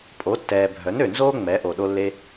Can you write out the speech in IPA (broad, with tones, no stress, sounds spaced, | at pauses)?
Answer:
pʼ o˨˦ tː ɛː˨ bʱ œ˨˦ n ø˨ n z oː˦ ŋ͡m ɛ˨˦ ʔ o˨ ɗ o˧ lː e˧